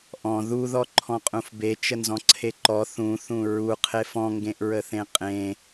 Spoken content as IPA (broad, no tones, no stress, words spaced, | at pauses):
ʔɔ̃ ðuðɔ ǃʰɔ̃qʼũfbe t͡ʃənzɔ̃ǀʰeǃɔ θũθũ ɹuqʰef ɔ̃ŋɡẽʔɹəθẽ qʼẽ